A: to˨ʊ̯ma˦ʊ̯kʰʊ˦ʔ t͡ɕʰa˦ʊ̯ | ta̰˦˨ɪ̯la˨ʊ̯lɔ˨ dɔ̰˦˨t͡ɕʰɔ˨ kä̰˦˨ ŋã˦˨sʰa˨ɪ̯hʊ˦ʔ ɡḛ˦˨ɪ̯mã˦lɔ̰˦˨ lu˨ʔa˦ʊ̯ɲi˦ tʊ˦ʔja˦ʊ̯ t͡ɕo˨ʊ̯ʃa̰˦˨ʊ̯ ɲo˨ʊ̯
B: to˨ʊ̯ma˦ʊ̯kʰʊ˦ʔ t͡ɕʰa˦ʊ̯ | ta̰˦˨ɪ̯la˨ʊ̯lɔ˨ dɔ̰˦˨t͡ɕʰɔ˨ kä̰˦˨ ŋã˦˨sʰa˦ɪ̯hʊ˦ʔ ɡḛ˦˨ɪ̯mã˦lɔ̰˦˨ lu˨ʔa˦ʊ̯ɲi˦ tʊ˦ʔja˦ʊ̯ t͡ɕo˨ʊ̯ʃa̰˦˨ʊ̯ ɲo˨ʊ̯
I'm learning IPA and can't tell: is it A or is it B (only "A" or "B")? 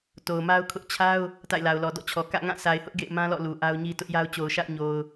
A